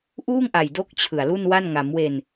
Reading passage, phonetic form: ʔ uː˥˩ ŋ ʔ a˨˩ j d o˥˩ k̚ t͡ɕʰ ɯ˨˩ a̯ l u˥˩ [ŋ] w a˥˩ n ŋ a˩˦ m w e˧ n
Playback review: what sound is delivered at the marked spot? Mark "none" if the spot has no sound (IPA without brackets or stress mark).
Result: n